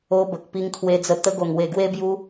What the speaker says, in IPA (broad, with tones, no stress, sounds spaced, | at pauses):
o˧ b ə˨ k̚ p i˧ ŋ kʰ w e˧ d͡z ə˧ t̪ ə˧ ɡ o˨˩ ŋ w e˨˩ ɡ w e˧ b j u˧